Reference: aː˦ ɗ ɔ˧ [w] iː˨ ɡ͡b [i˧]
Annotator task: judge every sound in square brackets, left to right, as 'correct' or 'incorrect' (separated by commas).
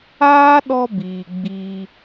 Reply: incorrect, incorrect